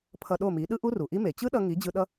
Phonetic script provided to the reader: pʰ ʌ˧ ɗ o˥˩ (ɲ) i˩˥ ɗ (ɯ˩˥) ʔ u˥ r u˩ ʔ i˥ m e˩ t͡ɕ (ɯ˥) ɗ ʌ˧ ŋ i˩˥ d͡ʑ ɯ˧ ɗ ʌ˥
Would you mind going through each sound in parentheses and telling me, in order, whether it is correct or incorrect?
incorrect: m, incorrect: ɯ˥, correct

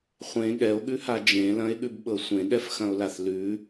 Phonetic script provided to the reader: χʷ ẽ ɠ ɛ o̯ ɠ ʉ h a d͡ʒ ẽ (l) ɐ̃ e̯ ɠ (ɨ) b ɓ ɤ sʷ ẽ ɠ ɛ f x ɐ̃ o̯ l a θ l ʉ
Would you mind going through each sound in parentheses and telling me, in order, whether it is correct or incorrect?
correct, incorrect: ʉ

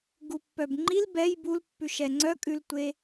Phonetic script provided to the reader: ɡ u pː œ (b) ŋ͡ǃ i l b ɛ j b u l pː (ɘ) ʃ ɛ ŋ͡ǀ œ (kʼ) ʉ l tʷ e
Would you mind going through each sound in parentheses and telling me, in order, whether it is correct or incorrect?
correct, incorrect: ʉ, correct

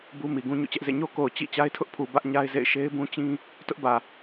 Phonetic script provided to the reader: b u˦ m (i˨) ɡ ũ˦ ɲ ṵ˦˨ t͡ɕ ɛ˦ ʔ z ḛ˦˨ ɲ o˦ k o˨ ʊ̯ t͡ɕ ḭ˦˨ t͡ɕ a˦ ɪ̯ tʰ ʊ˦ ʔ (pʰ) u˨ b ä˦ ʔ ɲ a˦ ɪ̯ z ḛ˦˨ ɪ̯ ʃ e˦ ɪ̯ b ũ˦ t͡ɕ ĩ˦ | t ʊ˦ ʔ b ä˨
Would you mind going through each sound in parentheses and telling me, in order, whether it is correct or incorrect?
correct, correct

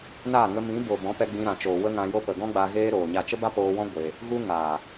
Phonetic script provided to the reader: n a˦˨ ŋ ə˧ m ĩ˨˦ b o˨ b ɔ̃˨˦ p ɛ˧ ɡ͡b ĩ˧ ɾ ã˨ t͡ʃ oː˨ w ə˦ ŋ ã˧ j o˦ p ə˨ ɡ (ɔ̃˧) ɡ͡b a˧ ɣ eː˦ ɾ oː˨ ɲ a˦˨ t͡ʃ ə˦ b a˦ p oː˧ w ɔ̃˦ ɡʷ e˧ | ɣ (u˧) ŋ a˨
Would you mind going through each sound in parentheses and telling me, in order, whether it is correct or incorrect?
incorrect: ɔ̃˦, incorrect: u˦

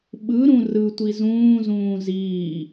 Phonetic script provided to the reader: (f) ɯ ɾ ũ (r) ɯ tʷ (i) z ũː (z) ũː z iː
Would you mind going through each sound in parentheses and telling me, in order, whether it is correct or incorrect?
incorrect: ɓ, correct, correct, correct

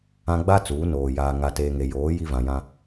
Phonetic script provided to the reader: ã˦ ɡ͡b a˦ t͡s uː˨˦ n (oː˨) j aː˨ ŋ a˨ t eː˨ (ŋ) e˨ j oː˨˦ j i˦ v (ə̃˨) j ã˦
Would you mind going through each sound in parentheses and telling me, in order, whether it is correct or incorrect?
correct, correct, incorrect: ã˨

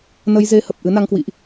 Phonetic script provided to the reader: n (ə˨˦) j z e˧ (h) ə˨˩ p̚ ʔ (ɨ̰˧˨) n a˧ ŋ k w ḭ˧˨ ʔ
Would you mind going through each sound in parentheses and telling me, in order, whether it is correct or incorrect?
incorrect: ə˧, correct, incorrect: ɨ˨˦

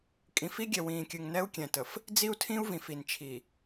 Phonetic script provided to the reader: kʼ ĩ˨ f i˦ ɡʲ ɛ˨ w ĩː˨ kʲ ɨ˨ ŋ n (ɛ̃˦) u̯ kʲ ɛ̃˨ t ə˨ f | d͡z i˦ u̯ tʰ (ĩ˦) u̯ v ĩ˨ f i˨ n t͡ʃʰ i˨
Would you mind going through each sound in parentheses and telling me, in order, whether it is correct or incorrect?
incorrect: ɛ˦, correct

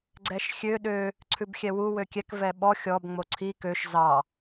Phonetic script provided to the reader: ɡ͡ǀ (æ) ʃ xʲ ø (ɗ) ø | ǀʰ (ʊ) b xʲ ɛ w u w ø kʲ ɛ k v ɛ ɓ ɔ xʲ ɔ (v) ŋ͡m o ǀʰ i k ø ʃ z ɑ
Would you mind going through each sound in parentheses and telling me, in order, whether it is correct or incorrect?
incorrect: ɛ, correct, incorrect: ʉ, incorrect: b

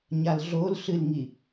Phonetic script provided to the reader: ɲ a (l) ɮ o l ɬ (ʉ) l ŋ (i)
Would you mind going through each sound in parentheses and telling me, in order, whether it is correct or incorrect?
correct, incorrect: ɨ, correct

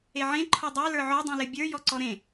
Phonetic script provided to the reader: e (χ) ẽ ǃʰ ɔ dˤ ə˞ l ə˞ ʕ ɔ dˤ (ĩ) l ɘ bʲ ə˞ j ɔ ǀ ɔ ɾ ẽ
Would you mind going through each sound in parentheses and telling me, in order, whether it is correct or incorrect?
incorrect: ʕ, correct

